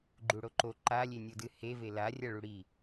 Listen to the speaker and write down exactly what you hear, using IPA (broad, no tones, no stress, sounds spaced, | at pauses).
ɡ͡ǃ u ɽ o ǃ o ǃ a lʲ e nʲ o d ɨ h e v e l a rʲ a ɭ u ɽ i